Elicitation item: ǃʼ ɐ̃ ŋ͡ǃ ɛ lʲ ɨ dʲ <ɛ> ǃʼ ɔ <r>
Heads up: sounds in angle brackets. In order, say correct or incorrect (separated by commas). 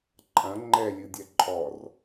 correct, correct